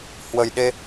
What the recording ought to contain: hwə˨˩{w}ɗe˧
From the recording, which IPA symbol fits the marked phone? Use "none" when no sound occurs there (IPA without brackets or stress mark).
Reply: j